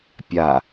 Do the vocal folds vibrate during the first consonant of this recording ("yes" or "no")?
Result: no